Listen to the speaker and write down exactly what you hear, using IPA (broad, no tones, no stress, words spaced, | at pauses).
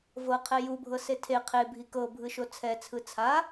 vɤqʰɛ jubʱɤse tʰe qʰebʱi kɤbʱɯʃo t͡sʰɛt͡sʰɯ t͡sʰa